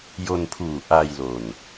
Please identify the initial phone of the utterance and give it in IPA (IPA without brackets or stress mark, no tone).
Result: j